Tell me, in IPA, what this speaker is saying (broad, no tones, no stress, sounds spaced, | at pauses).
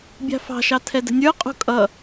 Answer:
bʲ ɑ̤ f ɑ̤ ʃ ɑ tʰ ɛ d ə̤ nʲ ə˞ qʼ ṳ kʼ ʌ